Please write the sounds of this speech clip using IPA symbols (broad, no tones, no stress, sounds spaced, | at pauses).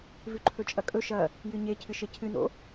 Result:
v ʉ ǃʰ ɵ t͡ʃʼ ɐ kʼ ɵ ʃ ɐ | j ɨ ɲ e cʰ ɨ ʃ e cʰ ɨ n o̰